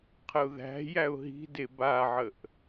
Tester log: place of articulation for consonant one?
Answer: uvular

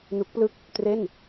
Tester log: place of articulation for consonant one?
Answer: alveolar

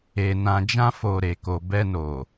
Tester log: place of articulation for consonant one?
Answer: alveolar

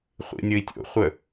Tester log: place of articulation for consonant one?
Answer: uvular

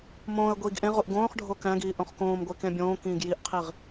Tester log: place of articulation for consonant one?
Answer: labial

